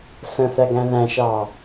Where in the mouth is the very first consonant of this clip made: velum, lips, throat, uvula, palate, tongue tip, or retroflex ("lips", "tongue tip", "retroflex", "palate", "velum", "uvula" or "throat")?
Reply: tongue tip